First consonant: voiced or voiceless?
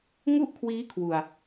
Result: voiced